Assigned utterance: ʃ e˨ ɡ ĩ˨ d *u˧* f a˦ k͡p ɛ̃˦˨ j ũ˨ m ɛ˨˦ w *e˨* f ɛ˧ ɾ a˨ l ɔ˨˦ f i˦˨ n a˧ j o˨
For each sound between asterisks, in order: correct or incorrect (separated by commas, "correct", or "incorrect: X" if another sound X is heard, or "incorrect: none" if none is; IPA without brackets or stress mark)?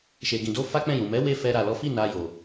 incorrect: o˧, incorrect: e˦